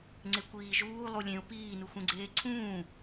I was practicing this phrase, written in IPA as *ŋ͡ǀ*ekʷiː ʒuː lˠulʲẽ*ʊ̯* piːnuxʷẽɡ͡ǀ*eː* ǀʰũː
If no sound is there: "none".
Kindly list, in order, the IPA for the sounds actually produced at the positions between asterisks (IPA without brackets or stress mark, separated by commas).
ŋ͡ǀ, ʊ̯, eː